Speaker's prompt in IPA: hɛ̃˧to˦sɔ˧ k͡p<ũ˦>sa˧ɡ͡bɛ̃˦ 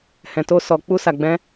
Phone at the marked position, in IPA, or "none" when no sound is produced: u˦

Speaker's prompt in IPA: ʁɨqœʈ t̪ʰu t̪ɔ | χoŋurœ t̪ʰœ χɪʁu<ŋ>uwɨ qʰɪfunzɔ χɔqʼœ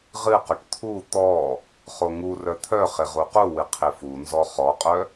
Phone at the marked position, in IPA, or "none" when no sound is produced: q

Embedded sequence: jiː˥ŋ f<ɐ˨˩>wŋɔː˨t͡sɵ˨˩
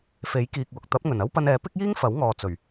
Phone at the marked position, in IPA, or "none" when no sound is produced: ɐ˨˥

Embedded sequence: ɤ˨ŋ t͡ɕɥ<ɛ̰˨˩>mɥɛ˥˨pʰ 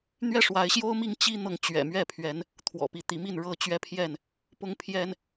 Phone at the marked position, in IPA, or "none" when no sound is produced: ɛ̰˨˩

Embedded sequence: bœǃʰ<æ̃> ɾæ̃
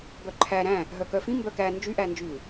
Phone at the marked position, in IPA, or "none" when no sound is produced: æ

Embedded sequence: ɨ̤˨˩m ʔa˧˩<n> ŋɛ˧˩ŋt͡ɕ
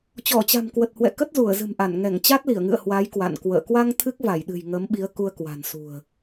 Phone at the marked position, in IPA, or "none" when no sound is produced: n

